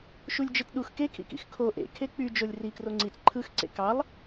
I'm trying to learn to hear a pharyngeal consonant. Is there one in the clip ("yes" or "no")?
no